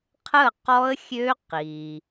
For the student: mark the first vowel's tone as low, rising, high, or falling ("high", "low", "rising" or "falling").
falling